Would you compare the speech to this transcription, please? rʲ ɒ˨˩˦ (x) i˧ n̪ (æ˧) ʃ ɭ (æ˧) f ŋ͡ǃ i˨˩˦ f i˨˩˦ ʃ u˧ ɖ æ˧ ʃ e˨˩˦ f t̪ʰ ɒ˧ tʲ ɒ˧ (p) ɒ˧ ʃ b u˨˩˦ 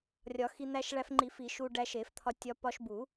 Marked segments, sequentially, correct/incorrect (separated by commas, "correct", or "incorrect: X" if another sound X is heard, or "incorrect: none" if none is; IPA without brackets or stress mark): correct, correct, correct, correct